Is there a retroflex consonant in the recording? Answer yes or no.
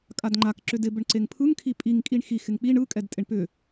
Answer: yes